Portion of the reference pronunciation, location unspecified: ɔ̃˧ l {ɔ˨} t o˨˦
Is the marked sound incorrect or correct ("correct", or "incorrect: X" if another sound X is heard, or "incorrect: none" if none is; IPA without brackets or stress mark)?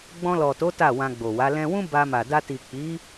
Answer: correct